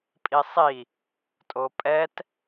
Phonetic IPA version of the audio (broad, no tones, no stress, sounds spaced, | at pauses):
pʼ i sˤ i | tʼ o pʼ ɛ t